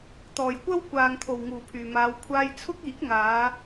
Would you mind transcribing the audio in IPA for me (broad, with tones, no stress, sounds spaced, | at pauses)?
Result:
t̪ ɔː˨˩ j kʷ ɐ˥ w kʷ aː˨ ŋ t̪ʰ o˨˩ w ŋ uː˨˩ pʰ yː˨˩ m aː˨˧ w kʷʰ aː˧ j t͡sʰ ʊ˥ k̚ iː˨˥ k̚ ŋ aː˨˧